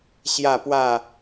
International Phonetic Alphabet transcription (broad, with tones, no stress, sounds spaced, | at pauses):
ɕ j a˥˧ p w a˥˧